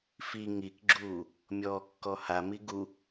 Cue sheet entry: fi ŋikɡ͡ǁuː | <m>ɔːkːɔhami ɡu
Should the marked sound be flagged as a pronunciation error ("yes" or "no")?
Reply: yes